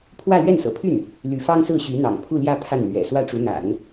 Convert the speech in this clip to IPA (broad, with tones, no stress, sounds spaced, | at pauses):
pʰ w ä˥˧ l ɥ ɛ˥˩ n s ɤ̰˨˩ pʰ y˥˩ n | l y˧˥ f ɑ˥ ŋ s ɹ̩˥˩ ɕ y˧˥ n̪ ɑ̰˨˩ ŋ pʰ u˥˧ l j ä˥˧ pʰ a˥˩ n n̪ ɥ ɛ̰˨˩ s w ä˥˩ ʈ͡ʂ u˧˥ n̪ a̰˨˩˦ n